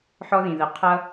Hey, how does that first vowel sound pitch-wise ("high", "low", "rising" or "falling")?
high